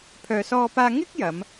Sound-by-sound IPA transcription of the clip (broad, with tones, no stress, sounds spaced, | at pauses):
pʰ œː˧ s ɔː˥ p aː˥ ŋ ɪ˥ k̚ j ɐ˨˧ m